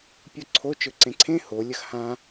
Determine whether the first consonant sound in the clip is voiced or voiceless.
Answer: voiceless